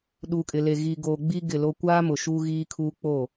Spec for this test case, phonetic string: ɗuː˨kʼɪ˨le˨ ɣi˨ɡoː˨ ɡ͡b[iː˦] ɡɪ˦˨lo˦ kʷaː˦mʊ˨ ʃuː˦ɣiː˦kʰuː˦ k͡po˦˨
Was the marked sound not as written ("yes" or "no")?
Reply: no